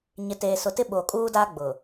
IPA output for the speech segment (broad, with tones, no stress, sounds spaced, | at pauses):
ɲ ɪ˨ t eː˨ s ʊ˨ t ɪ˦ ɓ oː˨ kʼ uː˦ d aː˦ ɡ͡b ʊ˨